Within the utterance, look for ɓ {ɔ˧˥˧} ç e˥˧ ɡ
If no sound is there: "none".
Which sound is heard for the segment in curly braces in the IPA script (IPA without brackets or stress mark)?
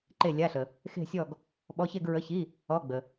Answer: ɔ˧˥˧